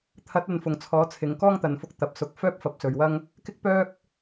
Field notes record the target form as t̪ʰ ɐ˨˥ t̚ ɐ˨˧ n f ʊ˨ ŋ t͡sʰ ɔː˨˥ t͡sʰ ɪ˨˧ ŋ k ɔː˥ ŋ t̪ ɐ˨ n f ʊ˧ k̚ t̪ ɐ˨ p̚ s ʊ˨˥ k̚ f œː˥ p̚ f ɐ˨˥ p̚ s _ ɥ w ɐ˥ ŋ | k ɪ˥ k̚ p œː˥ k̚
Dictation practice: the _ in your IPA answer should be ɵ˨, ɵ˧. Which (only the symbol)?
ɵ˨